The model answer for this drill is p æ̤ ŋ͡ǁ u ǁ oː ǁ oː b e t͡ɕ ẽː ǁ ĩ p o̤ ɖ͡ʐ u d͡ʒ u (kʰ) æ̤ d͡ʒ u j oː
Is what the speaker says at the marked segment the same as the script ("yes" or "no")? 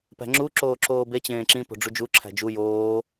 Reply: no